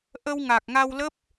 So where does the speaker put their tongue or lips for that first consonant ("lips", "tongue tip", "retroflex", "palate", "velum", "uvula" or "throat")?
throat